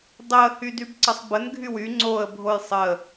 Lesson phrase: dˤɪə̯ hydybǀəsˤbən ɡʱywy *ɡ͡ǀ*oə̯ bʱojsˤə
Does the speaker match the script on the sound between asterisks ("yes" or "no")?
no